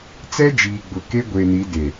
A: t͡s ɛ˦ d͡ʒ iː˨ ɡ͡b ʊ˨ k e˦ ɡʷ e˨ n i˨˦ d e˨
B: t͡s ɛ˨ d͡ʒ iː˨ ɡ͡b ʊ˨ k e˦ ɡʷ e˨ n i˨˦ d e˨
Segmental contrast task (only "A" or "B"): A